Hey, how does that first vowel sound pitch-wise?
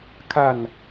falling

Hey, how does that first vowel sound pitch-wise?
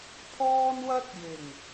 high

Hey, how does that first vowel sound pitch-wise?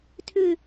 falling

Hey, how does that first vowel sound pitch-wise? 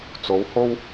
rising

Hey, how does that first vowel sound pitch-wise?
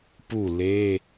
falling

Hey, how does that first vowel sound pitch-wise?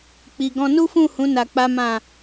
low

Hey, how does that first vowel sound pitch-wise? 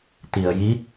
low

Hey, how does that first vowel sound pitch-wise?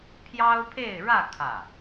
high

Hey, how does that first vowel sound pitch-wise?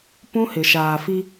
high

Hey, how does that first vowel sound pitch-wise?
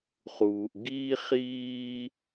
low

